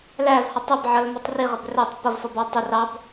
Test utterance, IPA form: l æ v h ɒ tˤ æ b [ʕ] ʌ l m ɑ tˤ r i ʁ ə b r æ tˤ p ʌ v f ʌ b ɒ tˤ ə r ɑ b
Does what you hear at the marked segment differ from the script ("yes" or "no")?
no